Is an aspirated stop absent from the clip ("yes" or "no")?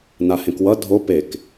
yes